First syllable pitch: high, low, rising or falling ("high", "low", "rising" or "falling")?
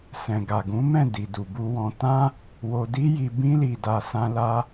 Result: low